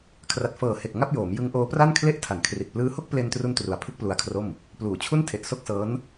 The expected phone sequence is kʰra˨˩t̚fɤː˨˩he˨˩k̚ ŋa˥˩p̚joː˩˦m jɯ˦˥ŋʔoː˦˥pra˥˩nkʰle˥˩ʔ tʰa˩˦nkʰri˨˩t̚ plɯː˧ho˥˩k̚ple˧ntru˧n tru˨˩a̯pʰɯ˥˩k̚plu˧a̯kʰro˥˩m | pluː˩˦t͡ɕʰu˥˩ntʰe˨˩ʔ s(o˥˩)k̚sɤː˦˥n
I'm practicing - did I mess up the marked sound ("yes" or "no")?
no